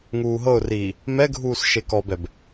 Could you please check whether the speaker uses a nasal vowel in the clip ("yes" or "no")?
no